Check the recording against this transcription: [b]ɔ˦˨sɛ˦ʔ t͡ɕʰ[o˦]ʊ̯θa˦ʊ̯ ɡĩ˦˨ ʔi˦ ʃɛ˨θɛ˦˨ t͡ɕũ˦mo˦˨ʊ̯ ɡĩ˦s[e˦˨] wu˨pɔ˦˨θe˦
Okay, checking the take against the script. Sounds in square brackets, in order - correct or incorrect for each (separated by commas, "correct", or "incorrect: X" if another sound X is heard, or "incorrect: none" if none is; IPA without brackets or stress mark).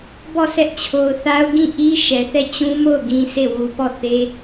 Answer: correct, incorrect: o˨, correct